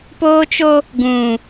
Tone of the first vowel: high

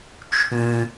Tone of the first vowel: low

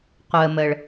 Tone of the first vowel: low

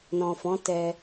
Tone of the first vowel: low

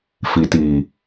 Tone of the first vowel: low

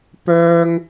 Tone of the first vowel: high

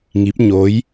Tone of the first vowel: rising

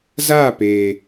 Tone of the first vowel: falling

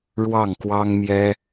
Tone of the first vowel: falling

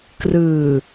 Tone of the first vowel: low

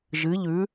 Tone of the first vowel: rising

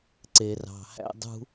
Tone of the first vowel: low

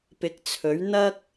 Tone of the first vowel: rising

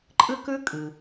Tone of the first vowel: high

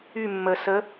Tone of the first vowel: falling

